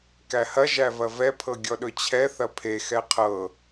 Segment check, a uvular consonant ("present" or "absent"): present